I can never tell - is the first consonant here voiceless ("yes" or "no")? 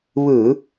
no